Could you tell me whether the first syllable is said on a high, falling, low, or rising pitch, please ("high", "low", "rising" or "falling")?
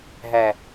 low